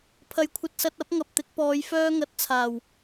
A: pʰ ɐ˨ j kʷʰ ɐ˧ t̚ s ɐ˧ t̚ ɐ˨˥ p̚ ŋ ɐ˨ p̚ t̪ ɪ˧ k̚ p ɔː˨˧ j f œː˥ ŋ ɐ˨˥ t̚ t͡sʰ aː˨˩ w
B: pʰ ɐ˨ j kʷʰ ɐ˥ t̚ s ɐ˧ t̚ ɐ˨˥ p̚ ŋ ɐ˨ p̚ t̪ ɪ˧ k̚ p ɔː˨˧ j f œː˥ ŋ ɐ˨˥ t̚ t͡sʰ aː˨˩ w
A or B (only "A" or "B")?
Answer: A